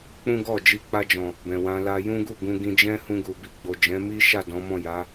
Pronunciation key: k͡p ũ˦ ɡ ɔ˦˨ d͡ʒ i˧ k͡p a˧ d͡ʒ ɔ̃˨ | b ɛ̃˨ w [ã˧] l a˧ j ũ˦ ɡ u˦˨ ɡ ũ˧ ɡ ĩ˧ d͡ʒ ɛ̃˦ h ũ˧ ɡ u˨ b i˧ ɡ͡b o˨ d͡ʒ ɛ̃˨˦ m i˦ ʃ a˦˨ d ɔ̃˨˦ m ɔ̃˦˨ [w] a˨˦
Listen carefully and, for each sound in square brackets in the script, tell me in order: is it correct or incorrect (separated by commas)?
correct, incorrect